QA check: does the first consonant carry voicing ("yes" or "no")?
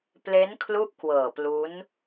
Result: no